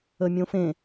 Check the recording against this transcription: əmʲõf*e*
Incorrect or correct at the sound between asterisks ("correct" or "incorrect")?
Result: incorrect